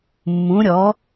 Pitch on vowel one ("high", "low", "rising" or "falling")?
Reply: rising